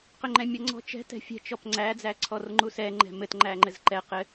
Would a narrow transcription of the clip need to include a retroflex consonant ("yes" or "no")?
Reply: no